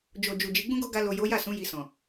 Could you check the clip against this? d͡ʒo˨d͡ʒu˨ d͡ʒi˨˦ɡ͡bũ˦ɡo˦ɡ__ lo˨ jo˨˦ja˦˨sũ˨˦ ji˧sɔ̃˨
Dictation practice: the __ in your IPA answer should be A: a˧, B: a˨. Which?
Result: A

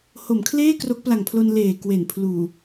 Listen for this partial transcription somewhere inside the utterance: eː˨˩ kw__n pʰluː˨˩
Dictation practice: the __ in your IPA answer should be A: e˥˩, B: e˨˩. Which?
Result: B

